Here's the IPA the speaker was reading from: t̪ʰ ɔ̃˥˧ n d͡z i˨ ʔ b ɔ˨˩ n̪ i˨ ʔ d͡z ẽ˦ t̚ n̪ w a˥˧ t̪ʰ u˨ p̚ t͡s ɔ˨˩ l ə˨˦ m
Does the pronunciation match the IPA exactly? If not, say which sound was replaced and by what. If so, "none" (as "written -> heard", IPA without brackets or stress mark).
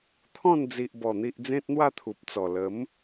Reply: none